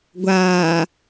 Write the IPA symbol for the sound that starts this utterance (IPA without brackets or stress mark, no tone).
ɡʷ